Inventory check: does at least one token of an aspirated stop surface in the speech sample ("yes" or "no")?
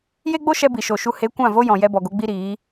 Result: no